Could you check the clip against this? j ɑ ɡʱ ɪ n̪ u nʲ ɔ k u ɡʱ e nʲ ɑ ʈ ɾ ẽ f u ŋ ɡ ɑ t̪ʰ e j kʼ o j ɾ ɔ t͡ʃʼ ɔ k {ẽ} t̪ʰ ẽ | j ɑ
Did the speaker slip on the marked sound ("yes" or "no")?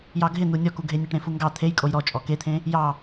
yes